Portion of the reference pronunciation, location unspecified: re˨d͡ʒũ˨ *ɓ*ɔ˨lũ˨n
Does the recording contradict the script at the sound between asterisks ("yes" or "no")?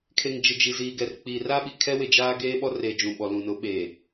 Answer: no